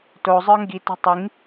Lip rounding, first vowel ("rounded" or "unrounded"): rounded